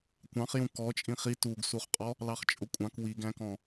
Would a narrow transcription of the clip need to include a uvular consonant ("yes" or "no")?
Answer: yes